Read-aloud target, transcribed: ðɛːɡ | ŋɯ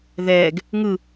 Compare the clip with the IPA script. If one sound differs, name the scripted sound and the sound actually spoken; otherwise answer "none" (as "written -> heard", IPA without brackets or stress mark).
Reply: none